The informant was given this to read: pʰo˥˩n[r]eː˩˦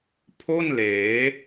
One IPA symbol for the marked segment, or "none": l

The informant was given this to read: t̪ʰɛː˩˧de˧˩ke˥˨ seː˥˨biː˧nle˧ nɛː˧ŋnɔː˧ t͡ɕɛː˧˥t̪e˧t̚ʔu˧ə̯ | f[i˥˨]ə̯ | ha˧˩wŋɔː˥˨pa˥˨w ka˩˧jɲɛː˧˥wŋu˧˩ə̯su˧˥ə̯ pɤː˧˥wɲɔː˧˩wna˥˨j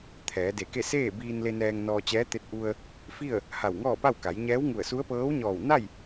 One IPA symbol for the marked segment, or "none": i˥˨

